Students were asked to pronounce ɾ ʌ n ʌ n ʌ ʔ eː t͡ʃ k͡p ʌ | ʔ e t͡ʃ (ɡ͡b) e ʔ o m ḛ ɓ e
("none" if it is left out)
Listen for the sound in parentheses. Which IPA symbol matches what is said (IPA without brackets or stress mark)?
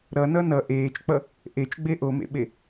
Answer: ɡ͡b